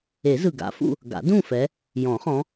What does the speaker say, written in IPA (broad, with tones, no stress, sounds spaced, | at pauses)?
e˨˩˦ z ɯ˨˩ ɡ a̰˨˦ f ṵ˥˨ | ɡ a̰˨˩˦ d ũ˥˨ f ɛ˨˦ | j ɔ̃˨˩˦ χ ɔ̃˨˦